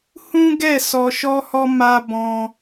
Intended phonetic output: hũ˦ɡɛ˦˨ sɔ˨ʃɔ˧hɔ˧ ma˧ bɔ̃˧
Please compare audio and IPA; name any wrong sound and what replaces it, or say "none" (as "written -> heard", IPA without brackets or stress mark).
none